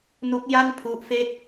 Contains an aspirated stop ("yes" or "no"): yes